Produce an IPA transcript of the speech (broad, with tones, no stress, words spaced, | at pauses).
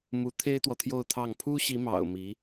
mu˧˥ t̪ʰe˥ɪ̯t̪wɔ˨t̪ʰjo˥˧ʊ̯t̪ʰɑ˥˩ŋ pʰu˥ɕi˧˥mɑ̰˨˩ʊ̯ mi˧˥